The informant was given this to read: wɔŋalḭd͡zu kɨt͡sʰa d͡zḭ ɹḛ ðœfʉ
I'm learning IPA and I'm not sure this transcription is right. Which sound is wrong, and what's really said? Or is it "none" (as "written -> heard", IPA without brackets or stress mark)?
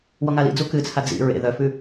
none